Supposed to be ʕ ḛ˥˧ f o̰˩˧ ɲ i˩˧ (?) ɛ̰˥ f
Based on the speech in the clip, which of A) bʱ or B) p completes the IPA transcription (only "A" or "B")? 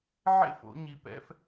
B